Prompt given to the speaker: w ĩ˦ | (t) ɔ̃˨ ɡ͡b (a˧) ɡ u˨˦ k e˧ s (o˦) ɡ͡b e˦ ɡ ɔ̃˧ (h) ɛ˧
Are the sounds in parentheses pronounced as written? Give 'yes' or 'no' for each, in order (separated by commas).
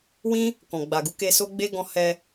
no, no, yes, yes